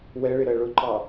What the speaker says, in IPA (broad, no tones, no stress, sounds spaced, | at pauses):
w ɛ ɭ ɪ ɾ ɜ ɭ ʊ ǃ ɑ